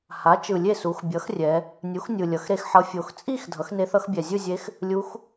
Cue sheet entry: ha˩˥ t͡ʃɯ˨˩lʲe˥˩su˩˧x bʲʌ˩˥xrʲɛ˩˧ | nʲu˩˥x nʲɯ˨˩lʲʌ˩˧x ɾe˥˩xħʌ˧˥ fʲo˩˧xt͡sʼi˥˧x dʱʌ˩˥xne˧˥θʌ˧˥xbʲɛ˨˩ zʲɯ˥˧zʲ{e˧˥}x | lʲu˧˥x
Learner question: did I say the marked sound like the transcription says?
yes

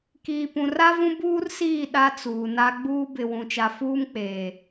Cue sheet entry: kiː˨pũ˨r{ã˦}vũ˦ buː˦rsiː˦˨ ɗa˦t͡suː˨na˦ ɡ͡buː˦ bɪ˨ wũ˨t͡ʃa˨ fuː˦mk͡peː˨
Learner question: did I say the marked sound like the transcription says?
no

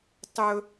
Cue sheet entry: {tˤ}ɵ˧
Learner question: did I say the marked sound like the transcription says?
yes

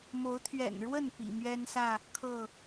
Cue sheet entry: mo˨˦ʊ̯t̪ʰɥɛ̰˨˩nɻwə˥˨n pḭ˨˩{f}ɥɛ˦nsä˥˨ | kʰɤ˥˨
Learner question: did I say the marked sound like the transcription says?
no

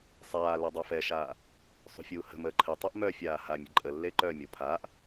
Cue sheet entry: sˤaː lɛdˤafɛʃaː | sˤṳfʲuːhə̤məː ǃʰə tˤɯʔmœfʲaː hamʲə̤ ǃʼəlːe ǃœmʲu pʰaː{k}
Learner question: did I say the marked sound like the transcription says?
no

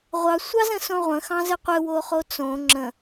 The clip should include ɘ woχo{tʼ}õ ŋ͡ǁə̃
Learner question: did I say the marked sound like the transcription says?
no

